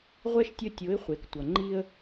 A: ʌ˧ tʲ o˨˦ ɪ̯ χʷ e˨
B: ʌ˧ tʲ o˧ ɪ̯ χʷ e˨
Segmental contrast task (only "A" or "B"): A